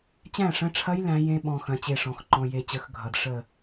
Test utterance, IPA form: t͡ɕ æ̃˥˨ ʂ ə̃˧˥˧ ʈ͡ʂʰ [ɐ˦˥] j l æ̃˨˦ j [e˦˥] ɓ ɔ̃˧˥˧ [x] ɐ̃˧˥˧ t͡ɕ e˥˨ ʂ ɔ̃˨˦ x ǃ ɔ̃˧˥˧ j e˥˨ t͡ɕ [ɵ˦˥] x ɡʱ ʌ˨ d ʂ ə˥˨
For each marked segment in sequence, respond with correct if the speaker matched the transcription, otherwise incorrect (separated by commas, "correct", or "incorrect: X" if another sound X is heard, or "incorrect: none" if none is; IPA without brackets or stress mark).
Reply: correct, incorrect: ẽ˦˥, correct, incorrect: ə˦˥